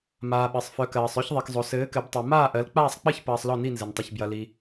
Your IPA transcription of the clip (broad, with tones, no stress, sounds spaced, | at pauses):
m aː˩ ɓ ɘ˩ sˤ f œ˩˧ k ɜː˩ sˤ œ˦˨ ç ðˤ i˩ k zˤ o˩ s ɘː˩˧ k ɘ˩˧ b tˤ ɜ˩ m aː˦˨ ʔ ɜ˩˧ l k͡p aː˦˨ sˤ k͡p ɘ˦˨ ç p ɐː˩ sˤ l ɔ˦˨ n i˦˨ n z ɘ˩ n tˤ ɐ˩ ç b j ɐ˩ l i˩